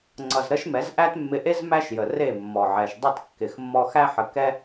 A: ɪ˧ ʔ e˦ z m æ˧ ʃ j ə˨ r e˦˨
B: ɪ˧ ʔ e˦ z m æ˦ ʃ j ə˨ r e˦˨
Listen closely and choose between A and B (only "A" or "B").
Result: B